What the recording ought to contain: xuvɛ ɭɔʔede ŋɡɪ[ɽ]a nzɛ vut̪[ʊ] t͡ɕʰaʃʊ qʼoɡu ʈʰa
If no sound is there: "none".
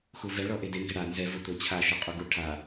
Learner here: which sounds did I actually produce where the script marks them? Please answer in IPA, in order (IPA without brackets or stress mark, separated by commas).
ɽ, ʊ